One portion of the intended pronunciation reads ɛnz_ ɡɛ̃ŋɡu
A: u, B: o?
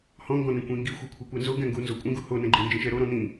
B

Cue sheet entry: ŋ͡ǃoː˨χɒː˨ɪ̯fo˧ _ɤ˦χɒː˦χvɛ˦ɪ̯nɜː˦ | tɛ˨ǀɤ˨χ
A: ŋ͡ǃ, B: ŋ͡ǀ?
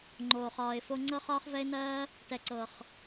B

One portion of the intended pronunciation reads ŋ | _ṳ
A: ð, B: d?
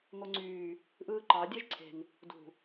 B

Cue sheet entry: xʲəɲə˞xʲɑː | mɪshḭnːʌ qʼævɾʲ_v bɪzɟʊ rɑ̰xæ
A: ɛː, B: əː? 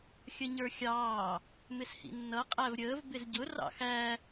B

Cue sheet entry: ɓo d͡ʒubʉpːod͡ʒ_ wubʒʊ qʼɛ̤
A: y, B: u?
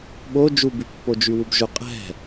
A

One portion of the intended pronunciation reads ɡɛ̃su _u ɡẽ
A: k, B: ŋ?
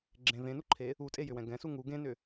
B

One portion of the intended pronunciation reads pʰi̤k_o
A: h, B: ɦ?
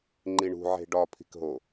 B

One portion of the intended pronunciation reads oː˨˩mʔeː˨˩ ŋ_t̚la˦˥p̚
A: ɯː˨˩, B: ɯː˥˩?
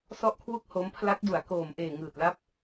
A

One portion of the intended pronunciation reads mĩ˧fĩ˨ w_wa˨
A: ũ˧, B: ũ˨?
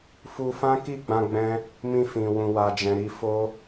B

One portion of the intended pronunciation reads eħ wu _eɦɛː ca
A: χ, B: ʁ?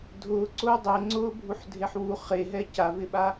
A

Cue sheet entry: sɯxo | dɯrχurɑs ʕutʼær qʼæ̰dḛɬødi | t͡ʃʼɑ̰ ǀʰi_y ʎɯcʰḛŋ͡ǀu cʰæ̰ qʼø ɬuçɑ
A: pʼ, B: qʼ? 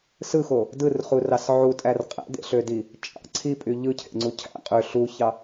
A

